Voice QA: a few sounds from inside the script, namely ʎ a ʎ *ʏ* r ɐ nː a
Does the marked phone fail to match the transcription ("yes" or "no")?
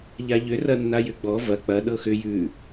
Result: no